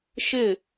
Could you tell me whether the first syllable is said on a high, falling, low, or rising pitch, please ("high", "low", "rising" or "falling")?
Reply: falling